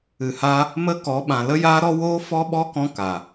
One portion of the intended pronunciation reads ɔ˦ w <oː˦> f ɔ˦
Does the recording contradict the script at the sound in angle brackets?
no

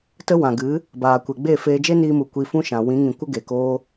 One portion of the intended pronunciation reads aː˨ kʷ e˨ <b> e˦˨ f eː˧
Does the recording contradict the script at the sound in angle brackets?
yes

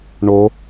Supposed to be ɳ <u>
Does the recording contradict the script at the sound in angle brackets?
yes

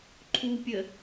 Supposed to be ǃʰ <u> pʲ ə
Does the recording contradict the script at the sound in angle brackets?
no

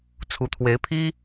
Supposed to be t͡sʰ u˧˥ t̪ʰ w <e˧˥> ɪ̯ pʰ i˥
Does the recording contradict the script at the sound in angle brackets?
no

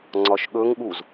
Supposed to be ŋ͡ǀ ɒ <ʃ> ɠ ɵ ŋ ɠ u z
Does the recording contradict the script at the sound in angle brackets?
no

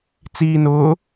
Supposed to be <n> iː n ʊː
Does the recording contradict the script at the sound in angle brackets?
yes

